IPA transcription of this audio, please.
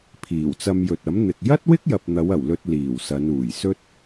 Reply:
pʰ iː˨˩ w t͡s ɐ˧ m j ɵ˨ t̚ ɐ˨˥ m n̪ ɪ˨ k̚ j ɐ˥ t̚ w ɪ˥ k̚ j ɐ˨ p̚ n̪ ɐ˨˧ w ɐ˨˩ w l ɵ˧ t̚ l iː˨˩ w s ɐ˨˧ n uː˨˩ j s ɵ˥ t̚

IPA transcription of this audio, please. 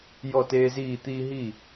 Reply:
j ɔ˥˩ t eː˦ z iː˥˩ t̪ iː˦ ɦ i˥˩

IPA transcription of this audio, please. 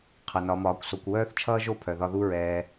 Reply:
qʰ ʌ˨ n ɒ˨˦ m ɒː˨˦ kʷ s o˧ kʷ w œː˦ θ t͡ʃʰ ʌː˦ ʒ o˦˨ pʰ œ˨ ð ɒ˧ ð u˦ ɹ ɛː˧

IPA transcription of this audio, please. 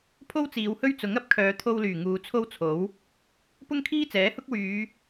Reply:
pʰ o˥ w t͡s iː˨˧ w h ɵ˥ ɥ t͡s ʊ˨˥ ŋ ɐ˨˥ p̚ kʰ œː˨˧ t̪ʰ o˧ w l yː˨˩ ŋ uː˨˧ t͡sʰ o˥ w t͡sʰ o˨˥ w | p ʊ˥ ŋ kʰ iː˥ t͡s ɛː˨˥ h ʊ˥ k̚ w yː˨˧

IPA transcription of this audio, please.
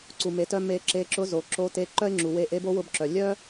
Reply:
ǀ u˩ m e˩˧ t œ˧ m e˧ ǁ e˧ ǁ ʊ˧˥ z o˩ ǁ o˧˥ t e˧˥ ǃ œ˥ ɪ̯ ŋ͡ǁ u˩ w e˧ ʔ e˧˥ b o˧˥ w ʊ˧ b ǁ œ˩ lʲ œ˥

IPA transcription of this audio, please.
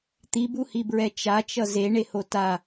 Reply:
t̪ i b u h i b ɹ ɛ t͡ʃ a t͡ʃ ʌ z e ɳ e h o t a

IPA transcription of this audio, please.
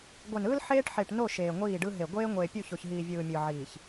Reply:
ɡʷ ɛ˨ n ɯː˦ l ħ eː˦ ʈ ħ e˨ ʈ n o˦˨ ʃ eː˨ ŋʷ iː˦˨ ɖ ɯ˦ ɦ e˨ ɡʷ eː˦ ŋʷ eː˨ pʲ u˦˨ ç o˨ ç ɦ iː˨ vʲ ɯː˨ mʲ ɯ˨ ʕ iː˨ ç

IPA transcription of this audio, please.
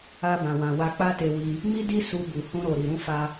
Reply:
a˧ b ã˨ w ã˨ w a˧ k͡p a˦ t e˧ w i˧ | m i˦ d i˦ s u˧ b u˨ h ũ˧ ɾ o˨ ɾ i˨ ɾ ũ˧ f a˧

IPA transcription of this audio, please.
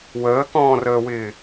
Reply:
w əː k ɔ̃ː r əː w ɪː

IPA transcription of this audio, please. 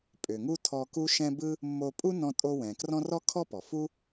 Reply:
pʼ ʏ˩ ŋ u˥ tʰ ɔ˧ k u˥ ʃ ɛ̃˥ b ɯ˥ | mː o˧ pʼ u˥ n ɔ̃˧ tʼ o˧ w ɛ̃˩ k r ɔ̃˥ r ɔ˥ kʰ ɔ˥ p ɔ˩ f u˥

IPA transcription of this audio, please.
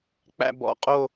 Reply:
k͡p æ̰˥˧ b ɔ̰˧˥˧ qʼ o˥˧

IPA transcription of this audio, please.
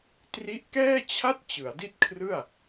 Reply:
t r i˦˥ ʔ k ɛː˥˩ t͡ɕʰ a˥˩ t̚ t͡ɕ ɯ˩˦ a̯ d i˥˩ t̚ kʰ r ɯ˥˩ a̯

